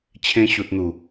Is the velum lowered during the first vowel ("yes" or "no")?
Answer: yes